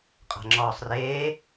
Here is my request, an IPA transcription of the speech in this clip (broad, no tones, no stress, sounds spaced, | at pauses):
qʼ a̤ ŋ͡ǁ ɔː sˤ r eː